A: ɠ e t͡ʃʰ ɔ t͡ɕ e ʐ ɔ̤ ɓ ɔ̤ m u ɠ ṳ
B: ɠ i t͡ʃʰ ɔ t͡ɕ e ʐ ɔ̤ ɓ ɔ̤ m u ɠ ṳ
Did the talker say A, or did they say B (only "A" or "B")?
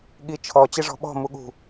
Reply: B